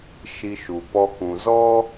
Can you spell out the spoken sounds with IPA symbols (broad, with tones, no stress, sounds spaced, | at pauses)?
ʃ i˧ ʃ u˨ p ɔ˧ k ũ˨ z ɔ˦